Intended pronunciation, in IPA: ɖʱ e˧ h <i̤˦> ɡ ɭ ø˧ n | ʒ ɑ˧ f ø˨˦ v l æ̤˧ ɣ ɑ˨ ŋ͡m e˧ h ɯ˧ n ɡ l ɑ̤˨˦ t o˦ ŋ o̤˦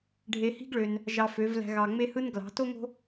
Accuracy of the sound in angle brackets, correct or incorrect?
correct